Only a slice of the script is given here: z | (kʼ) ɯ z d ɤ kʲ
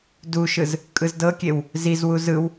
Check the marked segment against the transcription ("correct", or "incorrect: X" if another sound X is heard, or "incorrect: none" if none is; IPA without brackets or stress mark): correct